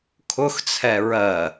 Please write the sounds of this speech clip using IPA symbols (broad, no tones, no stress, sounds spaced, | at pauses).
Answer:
kʰ ʊ x t͡sʰ ɛ ɹ ɜ